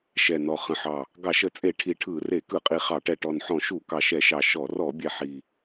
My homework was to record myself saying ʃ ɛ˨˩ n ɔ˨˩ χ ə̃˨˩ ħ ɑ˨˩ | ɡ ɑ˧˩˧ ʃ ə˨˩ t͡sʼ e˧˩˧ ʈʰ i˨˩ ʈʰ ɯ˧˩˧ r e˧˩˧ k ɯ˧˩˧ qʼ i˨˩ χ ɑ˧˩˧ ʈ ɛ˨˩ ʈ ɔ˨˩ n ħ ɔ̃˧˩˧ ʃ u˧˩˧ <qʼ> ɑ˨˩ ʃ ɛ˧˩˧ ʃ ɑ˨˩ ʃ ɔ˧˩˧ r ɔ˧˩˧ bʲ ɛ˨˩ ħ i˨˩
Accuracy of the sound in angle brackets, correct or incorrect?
incorrect